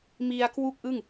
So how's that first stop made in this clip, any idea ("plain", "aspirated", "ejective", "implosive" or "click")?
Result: plain